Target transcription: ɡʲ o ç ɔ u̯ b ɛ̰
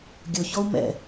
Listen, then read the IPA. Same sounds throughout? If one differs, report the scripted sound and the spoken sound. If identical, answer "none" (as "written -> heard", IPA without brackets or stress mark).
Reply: b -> m